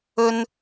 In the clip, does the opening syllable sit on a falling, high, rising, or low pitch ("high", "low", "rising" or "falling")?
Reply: high